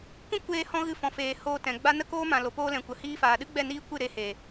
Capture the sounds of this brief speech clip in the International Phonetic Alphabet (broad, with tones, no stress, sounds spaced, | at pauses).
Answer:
kʷ ĩ˦ kʷ eː˧ h ɔ̃˧ ɣ ɨ˧ f ɔ̃˨ f eː˨ h oː˧ t ɛ̃˨ ɡ͡b a˦ n ə˦ k oː˦ m ã˨ l o˨ p oː˧ l ɛ̃˨ kʷ ə˨ h iː˧ f aː˨ ɗ ɨ˦ ɡ͡b ɛ˦˨ n iː˦ kʷ ɨ˦˨ ɾ e˧ h e˨